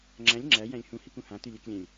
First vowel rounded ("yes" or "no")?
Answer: no